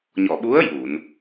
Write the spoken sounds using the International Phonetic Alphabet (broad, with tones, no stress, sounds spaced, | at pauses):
ɲ ɔ˨˩˨ ɓ u˧˥ ə̯ j u˨˩˨ n